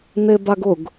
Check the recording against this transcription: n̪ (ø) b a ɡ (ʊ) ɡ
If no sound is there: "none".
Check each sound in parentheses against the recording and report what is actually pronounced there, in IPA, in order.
e, ʊ

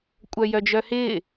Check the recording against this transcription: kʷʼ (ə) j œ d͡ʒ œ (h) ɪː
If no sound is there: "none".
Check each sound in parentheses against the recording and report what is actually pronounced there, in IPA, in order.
œ, h

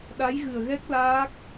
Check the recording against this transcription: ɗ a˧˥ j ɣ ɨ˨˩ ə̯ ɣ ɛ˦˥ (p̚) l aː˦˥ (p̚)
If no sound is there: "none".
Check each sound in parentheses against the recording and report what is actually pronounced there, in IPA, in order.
k̚, k̚

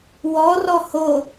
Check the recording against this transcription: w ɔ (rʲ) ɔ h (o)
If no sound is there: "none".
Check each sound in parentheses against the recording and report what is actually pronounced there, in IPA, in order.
r, o

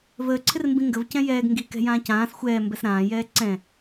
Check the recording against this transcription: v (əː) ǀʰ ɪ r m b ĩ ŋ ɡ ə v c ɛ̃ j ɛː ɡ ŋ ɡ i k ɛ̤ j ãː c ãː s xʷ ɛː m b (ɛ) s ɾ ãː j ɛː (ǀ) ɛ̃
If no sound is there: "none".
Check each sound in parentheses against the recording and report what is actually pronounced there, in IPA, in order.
əː, ɛ, ǀ

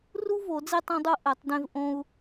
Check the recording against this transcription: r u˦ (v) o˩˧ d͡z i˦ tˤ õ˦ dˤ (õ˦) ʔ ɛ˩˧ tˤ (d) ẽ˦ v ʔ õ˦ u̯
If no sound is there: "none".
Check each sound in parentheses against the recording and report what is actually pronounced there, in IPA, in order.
v, o˦, d

